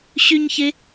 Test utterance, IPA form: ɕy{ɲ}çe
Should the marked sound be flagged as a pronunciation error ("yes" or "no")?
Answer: no